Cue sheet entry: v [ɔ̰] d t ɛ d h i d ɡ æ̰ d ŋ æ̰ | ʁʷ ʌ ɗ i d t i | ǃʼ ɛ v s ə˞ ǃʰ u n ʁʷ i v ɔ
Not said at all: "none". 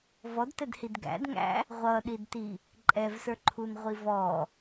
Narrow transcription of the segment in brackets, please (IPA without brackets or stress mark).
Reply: ɔ